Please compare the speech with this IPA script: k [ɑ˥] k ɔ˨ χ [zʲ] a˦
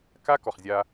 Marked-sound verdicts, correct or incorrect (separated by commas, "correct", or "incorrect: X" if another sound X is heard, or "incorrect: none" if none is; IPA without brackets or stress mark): incorrect: a˥, correct